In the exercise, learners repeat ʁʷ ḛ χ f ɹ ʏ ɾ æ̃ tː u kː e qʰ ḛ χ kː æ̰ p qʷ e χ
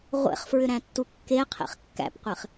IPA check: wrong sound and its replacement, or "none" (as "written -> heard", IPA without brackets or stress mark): none